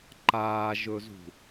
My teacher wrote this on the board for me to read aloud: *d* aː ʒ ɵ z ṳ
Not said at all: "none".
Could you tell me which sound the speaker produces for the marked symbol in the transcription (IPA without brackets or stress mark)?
ǃ